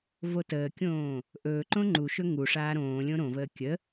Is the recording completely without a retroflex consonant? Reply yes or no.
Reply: no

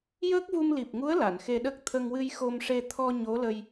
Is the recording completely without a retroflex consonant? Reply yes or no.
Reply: no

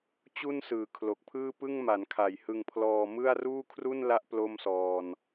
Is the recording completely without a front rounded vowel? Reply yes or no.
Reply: yes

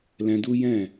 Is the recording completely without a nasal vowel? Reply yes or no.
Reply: no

